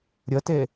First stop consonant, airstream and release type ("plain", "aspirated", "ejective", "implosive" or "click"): plain